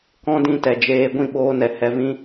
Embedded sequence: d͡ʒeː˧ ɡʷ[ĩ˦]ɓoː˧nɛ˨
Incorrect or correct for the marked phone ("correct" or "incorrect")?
incorrect